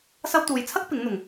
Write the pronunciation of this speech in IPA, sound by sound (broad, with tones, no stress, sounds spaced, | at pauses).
s ɐ˥ w t̪ uː˨˧ j t͡sʰ ɐ˥ k̚ p ɪ˨˥ ŋ n̪ ʊ˨˩ ŋ